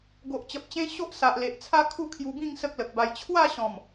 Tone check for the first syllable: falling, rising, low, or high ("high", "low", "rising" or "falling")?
low